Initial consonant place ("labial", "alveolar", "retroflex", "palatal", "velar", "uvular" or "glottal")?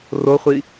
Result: alveolar